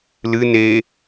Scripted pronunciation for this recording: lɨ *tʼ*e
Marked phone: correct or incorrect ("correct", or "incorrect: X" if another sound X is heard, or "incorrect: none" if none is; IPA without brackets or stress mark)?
incorrect: n